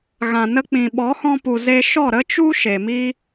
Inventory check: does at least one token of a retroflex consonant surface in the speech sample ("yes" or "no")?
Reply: no